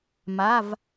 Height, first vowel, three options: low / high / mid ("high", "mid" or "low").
low